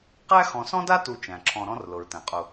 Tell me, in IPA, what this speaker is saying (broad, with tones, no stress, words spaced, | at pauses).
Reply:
qæ˥ xɔ̃˨sɔ̃˥da˥tu˨ t͡ʃæ̃˩ǁʰɔ̃˨ɾɔ̃˦r lʊ˩ɹtæ̃˩qʼʊ˨